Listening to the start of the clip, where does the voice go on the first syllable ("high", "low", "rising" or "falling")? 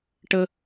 high